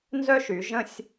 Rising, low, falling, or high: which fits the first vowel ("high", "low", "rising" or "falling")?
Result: high